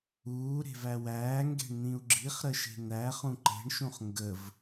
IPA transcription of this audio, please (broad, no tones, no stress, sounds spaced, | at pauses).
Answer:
uː ɾ e̤ v æ w æː ŋ ɡ e̤ ɳ n̪ ĩ u̯ ɡ͡ǁ i χ ɾ ə ʃ e̤ n̪ æ χ ũ ǃ e̤ ɳ ʃ ũ χ ŋ ɡ ə v